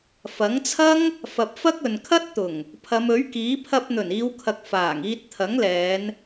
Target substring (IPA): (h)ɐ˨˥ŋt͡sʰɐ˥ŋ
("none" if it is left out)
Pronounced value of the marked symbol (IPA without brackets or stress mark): f